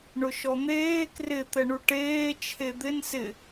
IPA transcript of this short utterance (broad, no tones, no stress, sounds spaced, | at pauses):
ɳ ʊ ʃ ɔ n̪ eː k r ɪ t̪ ɛ ɳ u ʈ eː t͡ʃʰ e d̪ ɪ n s ɪ